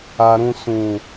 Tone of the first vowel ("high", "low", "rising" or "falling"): low